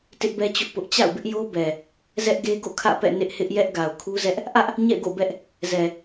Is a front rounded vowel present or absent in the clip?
absent